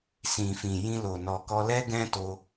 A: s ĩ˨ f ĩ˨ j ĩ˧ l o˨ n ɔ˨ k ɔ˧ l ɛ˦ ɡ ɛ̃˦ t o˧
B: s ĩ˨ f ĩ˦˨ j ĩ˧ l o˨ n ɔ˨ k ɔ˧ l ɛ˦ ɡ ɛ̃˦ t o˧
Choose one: A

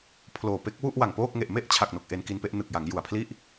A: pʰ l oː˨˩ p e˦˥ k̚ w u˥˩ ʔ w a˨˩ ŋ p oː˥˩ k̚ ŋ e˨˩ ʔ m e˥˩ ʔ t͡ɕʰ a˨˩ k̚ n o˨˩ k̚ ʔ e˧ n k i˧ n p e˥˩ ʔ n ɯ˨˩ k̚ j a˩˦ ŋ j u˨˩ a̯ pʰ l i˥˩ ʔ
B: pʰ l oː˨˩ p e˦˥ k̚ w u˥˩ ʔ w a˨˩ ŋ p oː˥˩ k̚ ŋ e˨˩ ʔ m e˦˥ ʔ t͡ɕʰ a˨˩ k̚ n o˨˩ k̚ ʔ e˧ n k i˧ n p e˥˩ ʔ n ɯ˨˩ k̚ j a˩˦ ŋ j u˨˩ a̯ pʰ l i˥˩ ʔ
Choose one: A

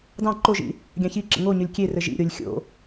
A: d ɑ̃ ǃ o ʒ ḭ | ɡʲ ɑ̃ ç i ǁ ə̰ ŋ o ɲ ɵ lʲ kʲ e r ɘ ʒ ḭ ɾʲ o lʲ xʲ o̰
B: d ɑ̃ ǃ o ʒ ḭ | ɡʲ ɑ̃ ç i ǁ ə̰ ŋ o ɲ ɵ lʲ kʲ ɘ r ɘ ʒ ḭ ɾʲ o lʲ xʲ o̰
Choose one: A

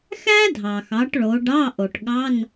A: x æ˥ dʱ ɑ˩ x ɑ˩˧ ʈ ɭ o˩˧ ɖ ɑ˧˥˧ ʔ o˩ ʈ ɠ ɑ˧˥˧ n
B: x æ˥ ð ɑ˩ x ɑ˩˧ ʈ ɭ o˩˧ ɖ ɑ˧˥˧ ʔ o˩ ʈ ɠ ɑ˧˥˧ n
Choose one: A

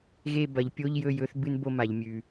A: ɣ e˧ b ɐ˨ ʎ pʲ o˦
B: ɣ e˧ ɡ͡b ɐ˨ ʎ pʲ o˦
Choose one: A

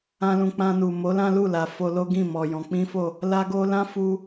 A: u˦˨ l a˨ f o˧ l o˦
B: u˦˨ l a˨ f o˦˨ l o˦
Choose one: A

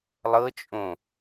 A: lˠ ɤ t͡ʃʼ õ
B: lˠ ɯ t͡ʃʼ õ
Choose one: A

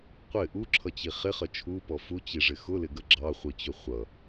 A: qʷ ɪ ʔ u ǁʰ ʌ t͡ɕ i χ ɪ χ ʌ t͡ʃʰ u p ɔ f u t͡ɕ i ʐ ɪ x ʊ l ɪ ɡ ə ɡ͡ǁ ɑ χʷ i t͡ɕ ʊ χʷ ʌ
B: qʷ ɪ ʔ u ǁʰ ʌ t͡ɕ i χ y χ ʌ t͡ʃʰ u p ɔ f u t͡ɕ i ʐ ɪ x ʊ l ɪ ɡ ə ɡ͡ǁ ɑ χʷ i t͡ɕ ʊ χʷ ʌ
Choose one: A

